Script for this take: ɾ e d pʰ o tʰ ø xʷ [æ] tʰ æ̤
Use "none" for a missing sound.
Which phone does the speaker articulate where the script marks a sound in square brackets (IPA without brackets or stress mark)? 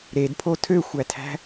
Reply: æ